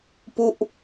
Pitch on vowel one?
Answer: falling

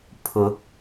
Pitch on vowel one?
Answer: rising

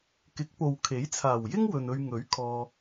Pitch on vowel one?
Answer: rising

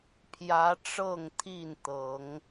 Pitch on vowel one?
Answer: rising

